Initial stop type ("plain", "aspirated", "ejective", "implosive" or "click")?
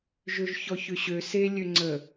click